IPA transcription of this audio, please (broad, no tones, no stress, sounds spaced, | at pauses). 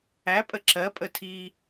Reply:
æ pʼ ə ǁ ɜ pʼ ə tʰ iː